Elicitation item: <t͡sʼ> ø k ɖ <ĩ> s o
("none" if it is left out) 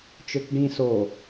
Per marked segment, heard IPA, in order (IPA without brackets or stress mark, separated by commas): t͡ʃ, ĩ